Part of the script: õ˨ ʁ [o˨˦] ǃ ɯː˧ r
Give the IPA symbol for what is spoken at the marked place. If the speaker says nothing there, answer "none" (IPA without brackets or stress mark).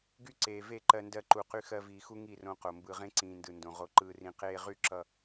o˧